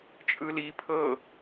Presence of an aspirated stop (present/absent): present